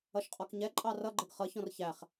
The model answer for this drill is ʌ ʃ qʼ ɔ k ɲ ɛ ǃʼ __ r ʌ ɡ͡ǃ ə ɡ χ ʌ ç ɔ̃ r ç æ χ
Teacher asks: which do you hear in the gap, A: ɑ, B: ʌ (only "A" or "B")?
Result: A